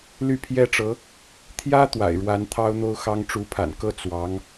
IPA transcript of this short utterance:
ly˥˩pʰjɛ˥ʈ͡ʂɤ˧˥ | t̪ʰjä˥ t̪wa̰˨˩ɪ̯ɻwa˧˥n t̪ʰɑ˥ʊ̯n̪o˥ʊ̯xɑ˥ŋ ʈ͡ʂu˧˥pʰa̰˨˩nkɤ˥ t͡swɑ˧˥ŋ

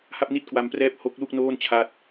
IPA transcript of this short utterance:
ha˥˩p̚ni˥˩t̚kwa˧mprɛː˦˥p̚ ho˦˥k̚lu˥˩k̚ noː˥˩n t͡ɕʰa˦˥t̚

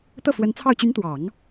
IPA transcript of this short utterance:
t̪ɤ˥˩fwə˧˥nt͡sʰɑ˥˩ʊ̯ t͡ɕy˧˥nt̪wɑ˨˩˦ŋ

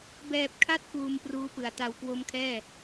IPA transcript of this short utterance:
bɛː˨˩p̚kʰa˦˥t̚ kuː˧mpruː˦˥pɯ˨˩a̯ ta˨˩wkwo˦˥mkʰɛː˥˩

